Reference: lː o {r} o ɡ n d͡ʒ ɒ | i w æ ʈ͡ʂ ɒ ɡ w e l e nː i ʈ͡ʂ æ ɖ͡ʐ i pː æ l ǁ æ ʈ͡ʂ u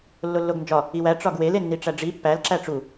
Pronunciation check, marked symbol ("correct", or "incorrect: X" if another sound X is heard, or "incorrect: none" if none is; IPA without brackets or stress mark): incorrect: lː